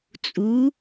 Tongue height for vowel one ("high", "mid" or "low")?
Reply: high